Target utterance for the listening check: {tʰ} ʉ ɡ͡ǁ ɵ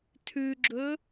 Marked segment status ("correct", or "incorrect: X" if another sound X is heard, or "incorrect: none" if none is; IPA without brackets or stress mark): correct